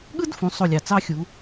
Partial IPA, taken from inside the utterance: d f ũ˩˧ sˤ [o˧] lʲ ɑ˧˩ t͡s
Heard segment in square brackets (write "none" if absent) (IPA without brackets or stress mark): o˥˧